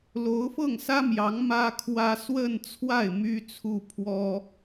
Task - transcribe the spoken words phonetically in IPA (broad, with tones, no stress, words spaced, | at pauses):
lo˧˥ʊ̯fɤ˥˩ŋsä˥mjɑ˧˥ŋ mä˥kʰwä˥ swə˥˧nt͡sʰwa˥˩ɪ̯ my˥t͡sʰu˥˩pʰwɔ˥